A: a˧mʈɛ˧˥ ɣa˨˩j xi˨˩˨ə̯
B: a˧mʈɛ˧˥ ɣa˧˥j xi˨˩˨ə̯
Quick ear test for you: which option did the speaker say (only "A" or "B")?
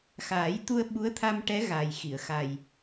A